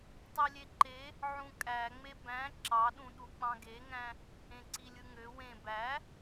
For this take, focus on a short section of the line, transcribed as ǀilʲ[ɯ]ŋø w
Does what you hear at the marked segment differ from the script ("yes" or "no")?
no